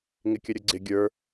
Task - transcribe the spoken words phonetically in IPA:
ŋɪkʲəɾʲʊɡ͡ǀɪ ɡʲə˞

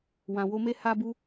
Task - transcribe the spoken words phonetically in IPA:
wã˨wo˧me˧ ha˧bu˧

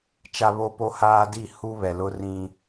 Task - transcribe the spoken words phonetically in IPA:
t͡ʃa˦βo˦po˦ haː˦di˦˨ hu˦βɛ˨lʊ˦rĩ˦

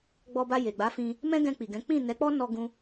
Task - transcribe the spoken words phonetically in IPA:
ɡ͡bɔ˧ba˧ je˨ɡ͡ba˨˦fĩ˧ | mɛ̃˦ɡɛ̃˧k͡pi˨ɡɛ̃˨˦ k͡pĩ˦˨nɛ˨˦k͡pɔ˦nɔ˧ ɡũ˦

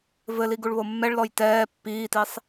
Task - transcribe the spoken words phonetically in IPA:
vɘli ɡuɭβomːɛɭlɔj tɛː pːiːtisˤ

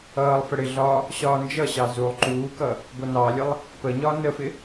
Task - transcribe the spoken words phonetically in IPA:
ʌːlˠfə ɽɪɮɒː | ɕɒːnd͡ʒʌɕɑ zulˠ ǃuːkʌ | ɡʷʌnɑlʲəlˠ | pəɲɒː nəfɪ

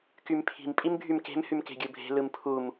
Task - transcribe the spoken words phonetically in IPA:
kympʰi̤m pʼimbʱymke̤m hymke̤ɡʲɯbʱe̤ lɯmpʰum

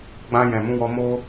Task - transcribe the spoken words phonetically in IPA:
ɡ͡bã˧ jɛ̃˨ mũ˨˦wɔ˧mo˦

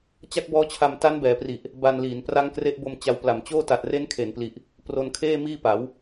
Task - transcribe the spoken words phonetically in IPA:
t͡ɕa˦˥k̚bɔː˦˥t͡ɕʰa˧m ta˦˥nbɛː˩˦pri˨˩ʔ | ba˧nliː˩˦n pra˦˥ŋkre˦˥ʔbo˧m t͡ɕa˧wpla˨˩mt͡ɕoː˥˩ ta˨˩t̚re˦˥nkʰe˩˦npli˨˩ʔ | pro˧nkʰeː˥˩miː˥˩pa˩˦w

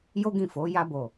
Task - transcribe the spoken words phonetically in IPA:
jo˦ɡĩ˦˨fo˨˦ ja˧bo˨

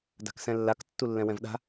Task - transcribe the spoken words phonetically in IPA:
da̤ksɛ̃lːak tːulːɛ̃wɛ̃vɗa̤

